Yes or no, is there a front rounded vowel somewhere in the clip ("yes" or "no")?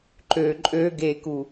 yes